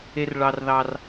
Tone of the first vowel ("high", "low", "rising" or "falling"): high